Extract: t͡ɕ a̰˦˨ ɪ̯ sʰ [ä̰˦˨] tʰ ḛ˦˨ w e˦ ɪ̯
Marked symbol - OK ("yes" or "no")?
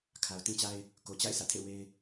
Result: yes